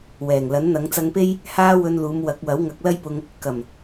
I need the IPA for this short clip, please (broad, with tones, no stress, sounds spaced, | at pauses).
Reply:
w ɛː˨˩ ŋ l ɐ˨˥ n n̪ ɐ˨˧ ŋ t͡s ɐ˧ ŋ p e˥ j | h aː˥ w ɵ˧ n l uː˨˧ m w ɐ˨˥ k̚ w ɐ˨˥ w ŋ ɐ˨˥ k̚ l ɐ˥ j p ʊ˧ ŋ | k ɐ˨˩ m